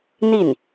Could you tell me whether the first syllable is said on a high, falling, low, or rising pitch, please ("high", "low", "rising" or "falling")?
falling